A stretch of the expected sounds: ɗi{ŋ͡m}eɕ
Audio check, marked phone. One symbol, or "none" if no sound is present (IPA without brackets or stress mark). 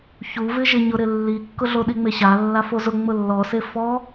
ŋ͡m